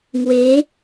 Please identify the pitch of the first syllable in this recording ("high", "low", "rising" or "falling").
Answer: rising